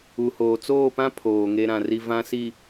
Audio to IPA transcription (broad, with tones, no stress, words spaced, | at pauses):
u˨hoː˨ t͡soː˦˨pã˦ pʰoː˨ŋe˦ɾã˨ri˦ vã˨ si˨